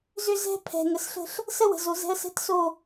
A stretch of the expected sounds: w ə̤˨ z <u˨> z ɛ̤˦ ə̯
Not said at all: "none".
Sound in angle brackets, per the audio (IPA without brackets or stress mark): o˨